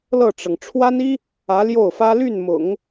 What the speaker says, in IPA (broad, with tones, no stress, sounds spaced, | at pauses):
l ɤ˥˩ ʈ͡ʂ ɤ˩ ŋ ʈ͡ʂʰ w a˥ n i˥ | ä˧˥ l j o˥˩ ʊ̯ f ä˥ l y˥˩ n m ʊ̰˨˩˦ ŋ